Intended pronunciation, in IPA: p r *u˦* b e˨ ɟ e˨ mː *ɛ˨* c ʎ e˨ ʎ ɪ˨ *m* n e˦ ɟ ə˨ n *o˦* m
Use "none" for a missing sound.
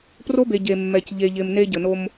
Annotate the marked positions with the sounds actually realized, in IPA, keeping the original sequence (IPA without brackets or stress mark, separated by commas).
o˦, ɛ˨, m, o˦